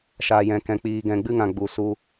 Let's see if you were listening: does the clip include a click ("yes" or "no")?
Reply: no